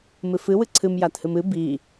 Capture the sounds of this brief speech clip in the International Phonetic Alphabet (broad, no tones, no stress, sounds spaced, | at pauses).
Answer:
m ɨ f ɨ w ɨ ǀʰ ɨ m j a t h ɨ m ɨ b i